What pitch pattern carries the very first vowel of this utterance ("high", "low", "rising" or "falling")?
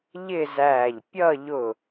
falling